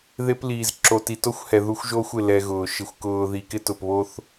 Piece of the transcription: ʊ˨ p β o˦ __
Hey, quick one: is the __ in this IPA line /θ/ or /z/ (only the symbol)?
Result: θ